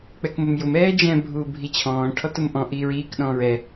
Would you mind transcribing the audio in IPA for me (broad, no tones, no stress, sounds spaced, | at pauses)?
k͡p ɛ k m ʊ m j ʊ m ɛː d͡ʒ ɛ̃ bʱ uː bʱ i t͡ɕʰ ɔ̃ː ʈʰ ɔ t ʊ m ʔ ɔ̃ ʔ iː ɹ iː k ɗ ɔ̃ː ɹ ɛ